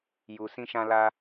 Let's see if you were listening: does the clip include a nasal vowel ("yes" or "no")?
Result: yes